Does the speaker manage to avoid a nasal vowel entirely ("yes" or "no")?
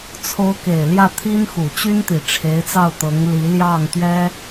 yes